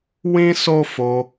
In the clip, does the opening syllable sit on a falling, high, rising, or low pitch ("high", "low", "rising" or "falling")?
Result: high